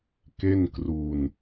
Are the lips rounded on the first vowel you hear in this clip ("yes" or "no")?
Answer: no